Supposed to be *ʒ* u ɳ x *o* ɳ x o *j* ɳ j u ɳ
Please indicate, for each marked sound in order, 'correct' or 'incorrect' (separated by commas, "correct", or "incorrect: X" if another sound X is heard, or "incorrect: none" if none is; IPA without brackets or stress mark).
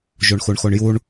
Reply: correct, incorrect: u, incorrect: none